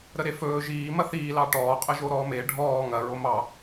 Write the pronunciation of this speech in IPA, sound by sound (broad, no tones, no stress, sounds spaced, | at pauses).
ɾ ə ɾ e f ɵː ʒ iː m ɐ θ iː l ɑ ʈ ɔː qʼ ə ʒ o ɾ ɔː m e ɖʱ ɔː ŋ ɐ ɹ o m ɑ